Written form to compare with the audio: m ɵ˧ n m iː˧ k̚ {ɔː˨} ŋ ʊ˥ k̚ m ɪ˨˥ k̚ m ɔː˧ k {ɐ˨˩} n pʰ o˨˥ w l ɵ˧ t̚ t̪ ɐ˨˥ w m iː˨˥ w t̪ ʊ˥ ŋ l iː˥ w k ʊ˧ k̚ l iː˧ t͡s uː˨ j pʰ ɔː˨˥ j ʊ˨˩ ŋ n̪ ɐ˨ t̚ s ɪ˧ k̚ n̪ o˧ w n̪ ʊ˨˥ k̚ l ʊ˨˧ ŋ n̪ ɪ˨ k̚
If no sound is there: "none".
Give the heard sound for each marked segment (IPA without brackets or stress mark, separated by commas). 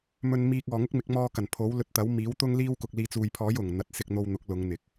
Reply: ɔː˨, ɐ˨˩